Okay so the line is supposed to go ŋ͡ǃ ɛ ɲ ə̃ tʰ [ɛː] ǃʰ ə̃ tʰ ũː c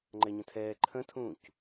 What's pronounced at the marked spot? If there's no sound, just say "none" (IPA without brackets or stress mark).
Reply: ɛː